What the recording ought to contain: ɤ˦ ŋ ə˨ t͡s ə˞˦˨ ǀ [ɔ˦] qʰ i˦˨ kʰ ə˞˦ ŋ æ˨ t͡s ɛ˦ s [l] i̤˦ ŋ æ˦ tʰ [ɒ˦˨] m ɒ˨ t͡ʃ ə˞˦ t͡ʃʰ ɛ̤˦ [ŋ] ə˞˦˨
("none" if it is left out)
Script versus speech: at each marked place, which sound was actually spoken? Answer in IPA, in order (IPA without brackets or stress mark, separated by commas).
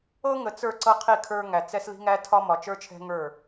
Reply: ɤ˦, l, ɒ˦, ŋ